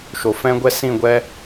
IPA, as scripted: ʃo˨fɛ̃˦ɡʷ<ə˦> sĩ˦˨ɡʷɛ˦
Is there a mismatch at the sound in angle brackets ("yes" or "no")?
yes